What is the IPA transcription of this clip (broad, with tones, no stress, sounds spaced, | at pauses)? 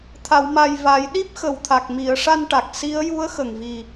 t̪ʰ a˨˩˨ w m a˨˩ j v a˨˩˦ j ɗ i˦˥ p̚ x ə˨˩ w t̪ʰ a˨˩ k̚ m i˨˩˨ ə̯ ʂ a˧ n ʈ a˨˩ k̚ s i˧˥ ə̯ j u˧˥ ə̯ x ə˨˩ ŋ v i˨˩